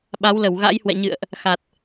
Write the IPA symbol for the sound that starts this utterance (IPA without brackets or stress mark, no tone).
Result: ɓ